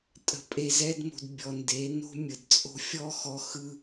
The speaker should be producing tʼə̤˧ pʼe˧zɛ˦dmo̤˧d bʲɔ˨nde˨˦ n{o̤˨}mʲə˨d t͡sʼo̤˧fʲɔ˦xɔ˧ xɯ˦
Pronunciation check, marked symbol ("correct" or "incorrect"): incorrect